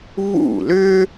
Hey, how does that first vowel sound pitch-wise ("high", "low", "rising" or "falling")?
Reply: falling